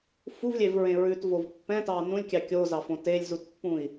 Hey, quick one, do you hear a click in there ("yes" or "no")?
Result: no